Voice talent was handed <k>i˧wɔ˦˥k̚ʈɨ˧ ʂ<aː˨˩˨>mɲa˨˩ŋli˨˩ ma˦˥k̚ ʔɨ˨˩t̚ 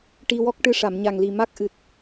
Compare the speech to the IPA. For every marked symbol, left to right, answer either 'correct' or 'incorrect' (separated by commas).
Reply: incorrect, incorrect